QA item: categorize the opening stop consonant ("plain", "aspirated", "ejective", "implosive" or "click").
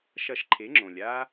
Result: click